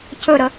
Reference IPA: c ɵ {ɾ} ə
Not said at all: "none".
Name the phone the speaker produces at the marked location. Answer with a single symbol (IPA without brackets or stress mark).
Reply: ɾ